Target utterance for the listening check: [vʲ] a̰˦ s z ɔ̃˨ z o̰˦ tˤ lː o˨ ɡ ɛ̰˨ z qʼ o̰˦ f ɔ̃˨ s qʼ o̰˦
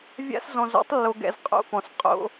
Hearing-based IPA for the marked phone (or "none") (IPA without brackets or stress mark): vʲ